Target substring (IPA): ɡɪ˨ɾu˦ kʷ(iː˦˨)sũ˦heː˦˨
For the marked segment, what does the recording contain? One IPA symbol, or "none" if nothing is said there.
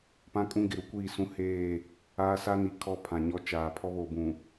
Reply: iː˦˨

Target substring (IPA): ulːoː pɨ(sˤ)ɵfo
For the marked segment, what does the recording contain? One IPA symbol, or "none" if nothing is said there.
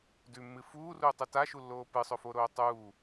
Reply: sˤ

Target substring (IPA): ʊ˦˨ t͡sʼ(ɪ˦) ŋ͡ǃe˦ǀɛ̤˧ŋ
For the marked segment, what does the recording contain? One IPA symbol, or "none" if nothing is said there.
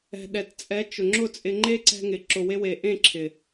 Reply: ɪ˧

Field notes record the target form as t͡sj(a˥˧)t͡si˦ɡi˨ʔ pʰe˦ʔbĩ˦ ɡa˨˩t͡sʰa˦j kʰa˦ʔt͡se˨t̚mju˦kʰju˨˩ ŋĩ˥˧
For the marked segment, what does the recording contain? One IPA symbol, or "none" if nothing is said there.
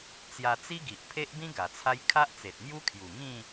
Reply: a˧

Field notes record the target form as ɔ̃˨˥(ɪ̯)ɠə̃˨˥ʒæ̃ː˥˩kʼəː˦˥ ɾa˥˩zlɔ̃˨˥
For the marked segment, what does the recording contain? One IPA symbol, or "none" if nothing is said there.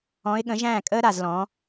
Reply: ɪ̯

